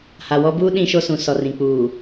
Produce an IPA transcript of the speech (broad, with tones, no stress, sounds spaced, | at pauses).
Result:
h a˨ w ɔ˦ b uː˦ ɗ ĩ˦ ʃ o˦ s ũ˨ s ɔ˨ r ĩ˨ k͡p uː˨